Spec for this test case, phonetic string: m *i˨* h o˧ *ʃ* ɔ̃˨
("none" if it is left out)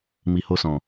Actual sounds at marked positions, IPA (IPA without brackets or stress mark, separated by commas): i˨, s